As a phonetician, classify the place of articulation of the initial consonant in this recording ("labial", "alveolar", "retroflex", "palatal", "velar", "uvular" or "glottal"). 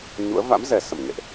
palatal